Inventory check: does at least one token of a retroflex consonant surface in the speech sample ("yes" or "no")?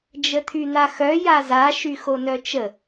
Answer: no